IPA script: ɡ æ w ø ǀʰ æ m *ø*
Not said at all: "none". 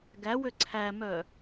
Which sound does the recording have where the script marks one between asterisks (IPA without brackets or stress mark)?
œ